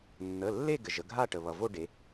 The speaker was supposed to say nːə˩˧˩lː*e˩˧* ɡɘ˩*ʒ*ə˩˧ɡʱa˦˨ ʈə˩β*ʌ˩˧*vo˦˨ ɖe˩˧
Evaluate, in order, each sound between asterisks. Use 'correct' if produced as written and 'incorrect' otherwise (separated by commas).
incorrect, correct, incorrect